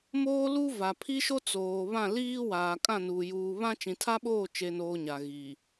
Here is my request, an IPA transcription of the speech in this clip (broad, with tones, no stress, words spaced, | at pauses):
moː˦lu˦ va˨pʰi˦ʃo˦ t͡soː˨βã˦˨liː˦ waː˨kʼã˦˨nuː˨ juː˨ βã˦ t͡ʃĩ˨tʰa˦ɓoː˦˨ t͡ʃe˨noː˨ ɲa˨ɣiː˨